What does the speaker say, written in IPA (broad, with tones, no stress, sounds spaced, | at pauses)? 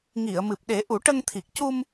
ŋ i˨˩˨ ə̯ m ɨ˨˩ p̚ ɗ e˨˩˦ ʔ u˨˩˦ ʈ ə˧ ŋ t̪ʰ i˨˩ k̚ c u˧ m